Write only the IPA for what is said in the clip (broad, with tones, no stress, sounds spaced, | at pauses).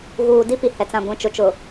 ɣ uː˨ d i˦ p i˨ h ɛ˨ t͡s ã˨ ɡʷ ĩ˨ t͡ʃ ʊ˨ t͡ʃ ʊ˨